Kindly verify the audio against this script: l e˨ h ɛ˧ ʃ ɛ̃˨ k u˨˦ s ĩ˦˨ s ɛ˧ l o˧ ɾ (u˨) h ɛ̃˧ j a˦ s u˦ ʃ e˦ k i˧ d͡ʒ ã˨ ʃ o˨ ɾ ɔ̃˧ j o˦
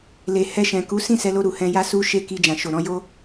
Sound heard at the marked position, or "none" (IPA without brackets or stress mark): u˨